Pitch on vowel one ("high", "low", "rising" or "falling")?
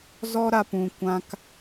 high